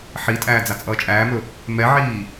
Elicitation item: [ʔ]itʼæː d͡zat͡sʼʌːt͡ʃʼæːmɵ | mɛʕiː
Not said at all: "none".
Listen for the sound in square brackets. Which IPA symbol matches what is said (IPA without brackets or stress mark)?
ħ